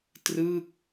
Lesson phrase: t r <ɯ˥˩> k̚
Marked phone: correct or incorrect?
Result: correct